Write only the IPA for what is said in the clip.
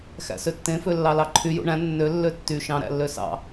x æ̰ s ø tː ẽ f ø lː ɑ l ɑ ǃʰ y j ṵ ɳ æ̃ nː ø lː ø tː y ʃ ɑ̃ ɾ æ̰ lː ø s ɑ̰

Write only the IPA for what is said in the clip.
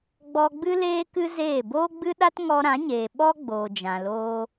ɡ͡b ɔ˧ ɡ͡b ɨ˦ l eː˦ k ɨ˦ z eː˦˨ b oː˦ ɡ͡b ɨ˦ ɗ a˦ t ŋ ɔ˧ ɾ ã˨˦ ɲ eː˨ ɓ ɔ˦ ɡ͡b oː˨ d͡ʒ ã˨ l oː˧

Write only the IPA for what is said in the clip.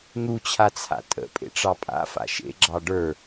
n̪ u t͡ɕʰ a t͡sʰ a̰ tʼ ə̰ pʼ ḛ ʈ͡ʂ ɑ pʼ a̰ f a̰ ʃ ḛ ɡ͡ǁ ɑ ɖ ə˞

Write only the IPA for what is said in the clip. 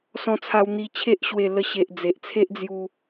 s ɔ̃˧ t͡sʰ a˧ w n̪ i˧ t͡ɕʰ e˦ ʔ ɕ w e˧ l ə˧ ɕ e˨ ʔ d͡z e˨ ʔ t͡sʰ e˦ ʔ d͡z j u˧

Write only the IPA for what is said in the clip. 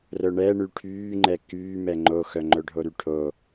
r œ ɳ ɛ ɳ y ʈʰ yː ŋ͡ǃ ɛ k yː m ɛ ŋ͡ǃ o x œ ŋ͡ǃ œ ɖʱ o ɾ y ʈʰ o

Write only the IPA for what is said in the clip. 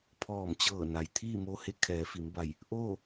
pʰ ɔː˧˩ m t͡ɕ ɤː˧˩ n a˩ j t̪ʰ iː˥˨ m o˧ h e˧˥ kʰ ɛː˩˧ f i˩˧ m b a˧˩ j | ʔ oː˥˨

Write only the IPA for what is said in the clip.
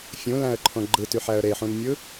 fʲ ũ l æ̃ ə̯ ǃʰ õ ɡ͡ǃ ɯ t y ħ æ ə̯ ɾ e ħ ũ n mʲ ɯ

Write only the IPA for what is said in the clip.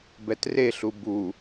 b ɛ t r e ɬ u b u

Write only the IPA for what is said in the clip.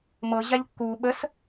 m ɤ ʑ a ʎ kː u ɓ ə s

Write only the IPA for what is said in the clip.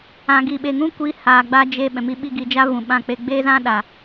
ã˨ ɡ iː˨ ɓ e˨ ŋ ũ˦ kʷ iː˨˦ h aː˨ ɡ͡b a˧ d͡ʒ e˧ ɓ ɛ̃˨ m i˧ ɓ i˧ ɡ i˧ d͡ʒ a˦ v ũ˨ ɓ ã˧ k͡p e˧ ɡ͡b eː˦ z ã˦ ɗ a˨

